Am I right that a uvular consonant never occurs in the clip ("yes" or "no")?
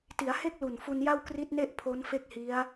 yes